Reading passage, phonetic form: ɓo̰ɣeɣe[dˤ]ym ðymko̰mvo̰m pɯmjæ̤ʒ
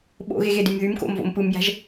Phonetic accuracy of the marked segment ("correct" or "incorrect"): incorrect